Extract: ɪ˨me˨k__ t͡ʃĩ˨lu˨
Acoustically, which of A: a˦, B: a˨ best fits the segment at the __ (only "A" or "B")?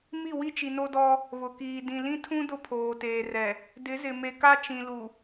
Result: A